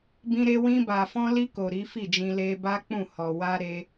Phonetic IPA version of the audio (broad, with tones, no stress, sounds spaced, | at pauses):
b ĩ˧ ɾ e˧ w ĩ˧ b a˨ f ɔ̃˧ l i˧ k o˨ ɾ i˨˦ f i˦˨ d͡ʒ ĩ˧ l e˧ b a˦ k͡p ũ˦˨ h ɔ˨ w a˧ ɾ e˦